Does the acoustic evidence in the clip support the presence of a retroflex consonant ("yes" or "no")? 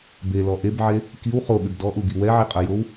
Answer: no